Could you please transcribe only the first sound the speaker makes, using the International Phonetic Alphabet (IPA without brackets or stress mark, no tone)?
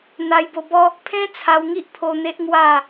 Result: n̪